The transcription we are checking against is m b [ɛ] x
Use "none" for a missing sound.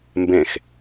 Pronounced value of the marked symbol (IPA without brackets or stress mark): ɛ̃